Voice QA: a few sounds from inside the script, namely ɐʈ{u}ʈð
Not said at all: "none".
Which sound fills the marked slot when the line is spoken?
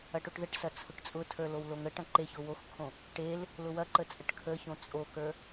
o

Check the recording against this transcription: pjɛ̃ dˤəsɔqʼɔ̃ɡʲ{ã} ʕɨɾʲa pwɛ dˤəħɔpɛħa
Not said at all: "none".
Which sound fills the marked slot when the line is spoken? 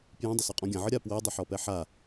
ã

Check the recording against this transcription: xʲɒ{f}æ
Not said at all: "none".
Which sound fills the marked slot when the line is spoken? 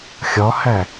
h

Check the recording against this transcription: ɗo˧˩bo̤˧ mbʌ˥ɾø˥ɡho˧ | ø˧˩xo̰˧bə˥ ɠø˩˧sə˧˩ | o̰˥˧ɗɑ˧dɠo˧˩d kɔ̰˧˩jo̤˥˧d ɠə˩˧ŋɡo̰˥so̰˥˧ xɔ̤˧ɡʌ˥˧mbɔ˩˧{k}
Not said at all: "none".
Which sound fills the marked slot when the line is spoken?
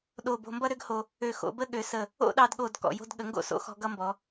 none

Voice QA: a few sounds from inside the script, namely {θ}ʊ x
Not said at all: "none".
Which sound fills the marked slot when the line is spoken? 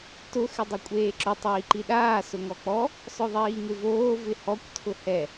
t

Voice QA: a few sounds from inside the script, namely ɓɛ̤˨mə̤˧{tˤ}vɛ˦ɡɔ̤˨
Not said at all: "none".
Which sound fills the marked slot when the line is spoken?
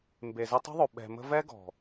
none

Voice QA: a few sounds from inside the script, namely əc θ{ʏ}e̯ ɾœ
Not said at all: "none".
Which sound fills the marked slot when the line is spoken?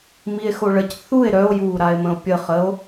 u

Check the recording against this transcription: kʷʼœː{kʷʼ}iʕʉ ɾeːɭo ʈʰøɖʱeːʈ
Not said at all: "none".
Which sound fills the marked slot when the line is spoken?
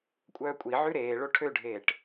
kʷʼ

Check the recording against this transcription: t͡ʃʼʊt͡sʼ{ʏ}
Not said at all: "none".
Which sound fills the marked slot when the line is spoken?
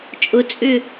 ʏ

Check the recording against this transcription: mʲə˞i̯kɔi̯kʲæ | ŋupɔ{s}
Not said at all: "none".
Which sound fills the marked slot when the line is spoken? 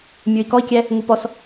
s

